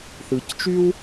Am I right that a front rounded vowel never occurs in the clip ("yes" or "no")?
no